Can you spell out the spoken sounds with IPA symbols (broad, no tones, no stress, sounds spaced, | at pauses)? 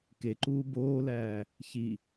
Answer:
k e ǃ uː b oː l æː | ç i